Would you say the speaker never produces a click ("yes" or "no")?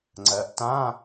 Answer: no